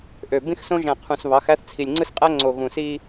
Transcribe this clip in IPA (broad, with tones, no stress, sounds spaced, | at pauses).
ʔ ø˨ b ĩ˦ x s õ˦ ʒ æ̃˨ qʰ ũ˨ s β ɑ˨˦ x æ˦ θ t͡sʰ i˨ lʲ ŋ͡ǀ ɯ˦ s qʼ æ˦ ŋ͡ǀ o˨ ɣ ũ˨ s i˦